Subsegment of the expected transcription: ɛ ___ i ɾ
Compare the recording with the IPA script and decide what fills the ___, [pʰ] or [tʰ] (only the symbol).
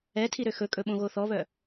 tʰ